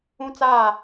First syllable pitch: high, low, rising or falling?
high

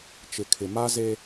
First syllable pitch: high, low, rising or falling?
low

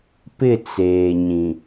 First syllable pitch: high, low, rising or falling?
falling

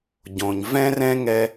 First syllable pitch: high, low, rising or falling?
low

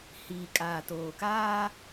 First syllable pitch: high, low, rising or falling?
low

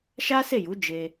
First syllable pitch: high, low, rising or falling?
high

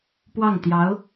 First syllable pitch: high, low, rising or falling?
falling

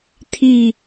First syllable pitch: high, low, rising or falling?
falling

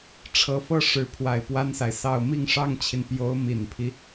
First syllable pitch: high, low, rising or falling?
rising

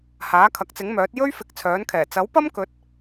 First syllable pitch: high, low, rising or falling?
rising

